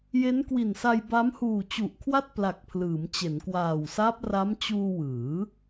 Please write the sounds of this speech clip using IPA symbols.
j e˦˥ n k w i˨˩ n s a˧ j b a˦˥ m h uː˨˩ t͡ɕ u˨˩ ʔ kʰ w a˥˩ t̚ p l a˨˩ k̚ pʰ l ɯː˩˦ m t͡ɕ e˩˦ n k w aː˨˩ w s aː˦˥ p̚ r a˦˥ m t͡ɕ uː˧ w ɯː˩˦

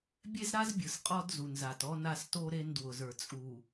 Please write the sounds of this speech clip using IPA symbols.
bʲ e˦ z ɾ a˦ z bʲ ɯ˨ s qʼ ɔ˦ d z u˨ n z a˨ t ɔ˦ n a˦ s t o˦ ɾ e˦ n d w ʊ˨ z ə˞˨ t͡sʼ u˨

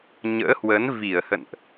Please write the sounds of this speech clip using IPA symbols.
ɲ ə̰ː˧˥ h w ə˨˦ n v i˧˩ ə̯ h ə̰˧˨ n ʔ

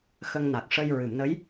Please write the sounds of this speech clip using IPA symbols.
x ə˧ ŋ n a˨˩ k̚ ʂ ə˧ j ɹ ɨ˨˩˨ m n ə˧˥ j

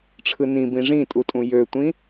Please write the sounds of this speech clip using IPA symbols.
ʈ͡ʂʰ ɯ n ĩ b ĩ ʐ ĩ tʼ u tʼ ũ j ø tʷ ĩ

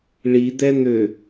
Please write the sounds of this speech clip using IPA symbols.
ɭ i d̪ ɛ n̪ ø

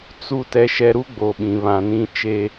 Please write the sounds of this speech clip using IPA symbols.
t͡s u˦ t ɛ˦ ʃ ɛ˦ ɾ u˦ ɡ͡b o˨ ɓ ĩ˨ β ã˨ n ĩ˦ t͡ʃ e˦

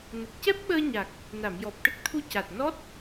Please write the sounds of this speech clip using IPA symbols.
n ə˨˩ k̚ c ɛ˦˥ p̚ ɓ əː˧ ɲ a˨˩ k̚ | n a˨˩˨ m j ɔ˨˩ p̚ ʈ ə˦˥ k̚ t̪ʰ u˧ c a˨˩ t̚ n ɔ˦˥ t̚

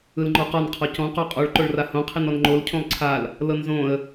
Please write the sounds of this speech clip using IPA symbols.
ɯ l ŋ͡ǃ ɔ q ɔ n qʰ ɔ c ɔ̃ q o qʼ ɔ ɭ ǃ o ɭ r a h õ qʰ i n ɔ n ŋ͡ǃ o l cʰ õ lˠ ǀʰ a l | l ɤ n z õ ə̯

